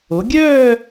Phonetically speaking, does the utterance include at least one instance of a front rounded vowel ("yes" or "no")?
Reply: yes